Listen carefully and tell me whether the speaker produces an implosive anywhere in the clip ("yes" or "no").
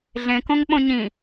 yes